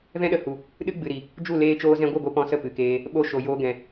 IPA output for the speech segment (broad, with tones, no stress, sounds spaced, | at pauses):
v ɛ̃˦ ɗ ə˨ h u˨ | ɗ ɨ˦ ɡ͡b ɨ˨ ɾ i˨ | d͡ʒ u˦˨ l eː˧ t͡ʃ oː˧ z ɛ̃˧ ɡʷ ɨ˦˨ ɡʷ e˧ p ɔ̃˧ s ə˦˨ p ɨ˨ k eː˧ | ɓ o˧ ʃ o˨ j oː˧ ɡ ɛ̃˨